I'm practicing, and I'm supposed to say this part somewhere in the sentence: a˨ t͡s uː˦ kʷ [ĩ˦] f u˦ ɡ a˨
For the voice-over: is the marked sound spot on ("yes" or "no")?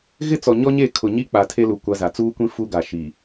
yes